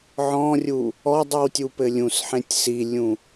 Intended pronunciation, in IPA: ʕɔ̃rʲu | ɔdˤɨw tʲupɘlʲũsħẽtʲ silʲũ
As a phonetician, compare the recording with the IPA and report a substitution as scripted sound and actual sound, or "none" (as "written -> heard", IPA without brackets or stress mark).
none